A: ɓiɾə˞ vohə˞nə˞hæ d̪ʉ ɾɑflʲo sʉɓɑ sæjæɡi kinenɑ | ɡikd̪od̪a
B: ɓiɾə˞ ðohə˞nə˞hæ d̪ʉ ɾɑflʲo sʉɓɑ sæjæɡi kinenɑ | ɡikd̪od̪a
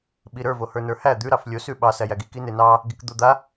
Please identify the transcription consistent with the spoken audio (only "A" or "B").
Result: A